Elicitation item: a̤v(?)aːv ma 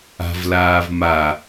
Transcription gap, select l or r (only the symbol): l